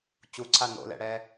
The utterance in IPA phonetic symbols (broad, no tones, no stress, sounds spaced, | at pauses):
t͡ɕ u ǀʰ a n o̰ l ɛ̰ ɽ ɛː